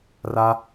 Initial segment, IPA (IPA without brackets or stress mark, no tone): r